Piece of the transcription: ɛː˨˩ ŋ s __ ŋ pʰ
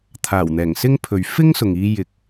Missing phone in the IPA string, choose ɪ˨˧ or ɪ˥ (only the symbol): ɪ˥